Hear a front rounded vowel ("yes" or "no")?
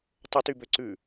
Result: yes